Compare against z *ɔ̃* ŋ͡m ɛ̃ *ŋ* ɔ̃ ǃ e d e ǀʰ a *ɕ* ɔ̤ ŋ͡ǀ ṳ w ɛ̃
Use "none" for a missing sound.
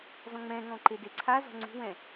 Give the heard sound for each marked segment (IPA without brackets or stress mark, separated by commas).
ɔ̃, ŋ, z